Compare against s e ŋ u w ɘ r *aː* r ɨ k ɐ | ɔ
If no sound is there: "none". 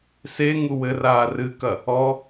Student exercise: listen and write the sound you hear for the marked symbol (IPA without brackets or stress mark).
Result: aː